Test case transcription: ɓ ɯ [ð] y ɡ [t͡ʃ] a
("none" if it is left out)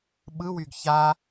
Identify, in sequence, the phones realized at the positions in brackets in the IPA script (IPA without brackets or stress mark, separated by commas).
w, ç